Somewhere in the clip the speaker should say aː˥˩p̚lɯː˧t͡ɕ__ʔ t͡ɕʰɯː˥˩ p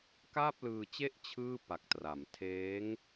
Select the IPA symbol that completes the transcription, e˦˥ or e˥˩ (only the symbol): e˥˩